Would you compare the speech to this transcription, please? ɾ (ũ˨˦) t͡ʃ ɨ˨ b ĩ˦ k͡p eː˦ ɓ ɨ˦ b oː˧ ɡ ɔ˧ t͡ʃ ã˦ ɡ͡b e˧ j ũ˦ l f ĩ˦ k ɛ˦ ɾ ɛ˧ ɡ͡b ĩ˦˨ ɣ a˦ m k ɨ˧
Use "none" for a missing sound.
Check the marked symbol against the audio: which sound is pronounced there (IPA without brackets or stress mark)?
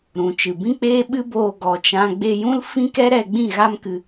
ũ˨